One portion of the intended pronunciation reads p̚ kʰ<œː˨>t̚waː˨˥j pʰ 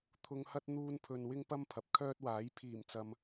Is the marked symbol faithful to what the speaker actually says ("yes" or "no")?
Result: no